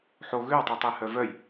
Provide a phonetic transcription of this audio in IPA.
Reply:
ħo ɣøwtˤitˤehœ vœj

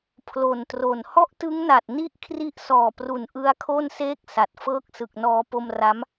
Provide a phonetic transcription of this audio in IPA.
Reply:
pʰlo˨˩ntro˨˩n hɔ˥˩ʔtɯ˦˥ŋna˨˩t̚ ni˥˩ʔkʰri˦˥ʔ sɔː˨˩pru˨˩n ʔɯ˦˥a̯kʰo˥˩nseː˥˩k̚ sa˨˩t̚fɤː˥˩k̚ sɯ˨˩k̚nɔː˧ po˧mra˦˥m

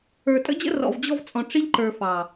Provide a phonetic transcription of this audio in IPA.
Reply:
ə˞˨tʼə̰˦d͡ʑə̰˦ rɔ̰˨vd͡ʑɔ˧v t͡sʼɔ̃˨ ʈ͡ʂi˧ʎǃə˞˨ fɑ˨

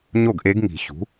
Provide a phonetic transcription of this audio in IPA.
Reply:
ɲo˥˩ɡʔe˧˥ɡŋi̤˨˩˦ çṳ˩˥

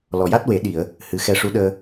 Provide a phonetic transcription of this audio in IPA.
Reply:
lɔ˨˩ja˦˥t̚we˨˩˦ɗi˨˩˨ə̯ | hɨ˨˩xɛ˧ʂu˧˥ɗəː˧

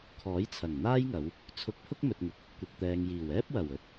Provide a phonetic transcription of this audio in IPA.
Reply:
kʰɔː˨˥jt͡sʰɐ˨˩ŋn̪aː˥jŋɐ˨˧w | t͡sʰʊ˨˥k̚ pʰʊ˥k̚mɵ˨t̚ŋɪ˨˥k̚ | kʷɪ˨k̚t̪ɛː˨ŋjiː˨˩w ɛː˥p̚wɐ˨˩w ɵ˧t̚

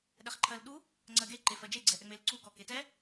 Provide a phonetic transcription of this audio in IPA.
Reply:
ɗɛχǃʰɜlɗu | ŋ͡ǀɜɡe ǃefɜd͡ʒe ɡ͡ǀɛʔɛŋ͡melǀu kɔketɛ

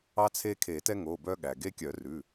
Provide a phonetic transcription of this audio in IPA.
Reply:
ɑ˦t͡sʰe˦kʰe˨˩˦ tɛ˦ŋo˩˧˩bœ˦ ɠæ˩ɡe˦kʲœ˨˩˦ rʉ˩˧˩

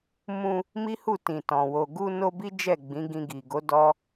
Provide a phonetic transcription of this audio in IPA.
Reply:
mũ˧ | mi˦hu˦˨tĩ˨tɔ̃˨ wo˨ɡu˧no˧ bi˦d͡ʒɛ˦˨ ɡ͡bĩ˨˦ɡĩ˧ ɡi˨ɡo˨˦ dɔ˦

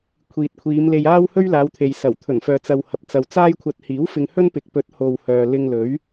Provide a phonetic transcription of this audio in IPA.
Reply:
kʷʰiː˨t̚kʷʰiː˨˧m le˧jaː˥w hɵ˥ɥlaː˨˧wt̪ʰe˨j sɐ˨˩wt̪ʰɵ˨˩nfœː˨t͡sɐ˨w hɐ˨p̚t͡sɐ˨wt͡saː˥jkʷʰɐ˧t̚ hiː˨˥w fɪ˧ŋhɵ˥n pɪ˨k̚pɵ˨˥t̚ ho˨w hœː˨ lɪ˧ŋlɵ˨˥ɥ

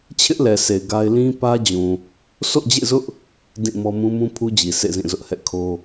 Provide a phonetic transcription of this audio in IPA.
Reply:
t͡ɕʰɪ˦ʔlɛ˨sʰe˨ɪ̯ ɡa˦ɪ̯ lĩ˦pä˦d͡ʑũ˨ | so̰˦˨d͡ʑḛ˦˨zʊ˦ʔ | dĩ˦˨mɔ˦ mũ˦mũ˦pʰu˦d͡ʑi˨ sʰḛ˦˨zĩ˦˨zʊ˦ʔhɛ̰˦˨ kʰo˦

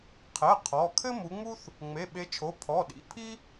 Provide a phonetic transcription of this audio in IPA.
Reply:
qʰɛ˩˧˩ qʰɔ˩˧˩ kʰɘ˥mu˨˦ŋ͡mu˥θ | ŋ͡me˩˧˩ɓe˨˦t͡ʃʰo˩˧˩ pʰɔ˩˧˩ɗḭ˩˧˩pʰi˥

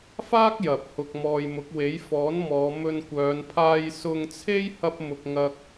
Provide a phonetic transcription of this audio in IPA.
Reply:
faː˥k̚ jɐ˨p̚hʊ˧k̚mɔː˧j mʊ˨˥k̚we˨˥j fɔː˨˥nmɔː˨˧ mɵ˧nkʷœː˨˧n pʰaː˧jsʊ˧ŋ t͡sʰe˥j hɐ˥p̚mʊ˧k̚ ŋɐ˧k̚

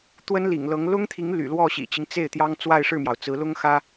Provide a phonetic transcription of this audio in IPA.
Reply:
t̪wə˥nlḭ˨˩ŋlɤ˧˥ŋ lʊ˥ŋt̪ʰi˧˥ŋ ly̰˨˩lwɔ˥˩ɕḭ˨˩t͡ɕi˦ŋ t͡se˥˩ɪ̯t̪jɑ˥ŋ t͡swa˥˧ɪ̯ʂɻ̩˥˩mjɑ˩ʊ̯ t͡sɹ̩˧˥lʊ˥ŋxä˥

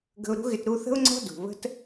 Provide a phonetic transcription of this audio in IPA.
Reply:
ɡə̤˧ʊ̯ɾṳ˦ɣɪ˧t ɾu˧θə̤˦ʊ̯ŋ͡ǀɔ̤˦ dṳ˨βə̤˦t

